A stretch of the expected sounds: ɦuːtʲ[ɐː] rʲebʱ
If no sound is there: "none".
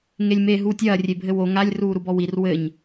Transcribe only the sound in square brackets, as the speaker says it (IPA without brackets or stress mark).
ɐː